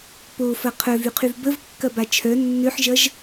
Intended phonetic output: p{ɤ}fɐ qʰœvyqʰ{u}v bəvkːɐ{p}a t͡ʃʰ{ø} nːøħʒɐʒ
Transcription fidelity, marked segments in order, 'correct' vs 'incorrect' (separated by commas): incorrect, incorrect, incorrect, incorrect